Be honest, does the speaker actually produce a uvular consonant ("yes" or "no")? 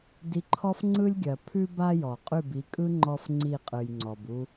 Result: yes